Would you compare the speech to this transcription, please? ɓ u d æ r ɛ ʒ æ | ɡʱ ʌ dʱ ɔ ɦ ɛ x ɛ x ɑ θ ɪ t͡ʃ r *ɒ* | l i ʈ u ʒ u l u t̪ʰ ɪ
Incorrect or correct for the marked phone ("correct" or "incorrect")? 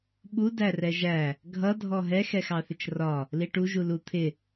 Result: correct